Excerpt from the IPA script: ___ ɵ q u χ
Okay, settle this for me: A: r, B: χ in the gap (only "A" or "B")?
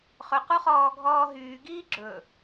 B